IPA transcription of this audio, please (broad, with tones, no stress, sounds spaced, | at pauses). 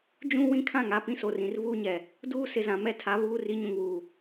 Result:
d͡ʒ ũ˦ w ĩ˦ kʰ ã˦˨ ŋ a˦˨ p ĩ˦ s o˨ r ĩ˨ r v uː˦ ɲ ɛ˨ | d uː˦ s ɪ˨ z ã˨ m ɛ˦˨ tʰ a˨˦ β uː˦ r i˨˦ ɲ ũ˨ ŋ w uː˨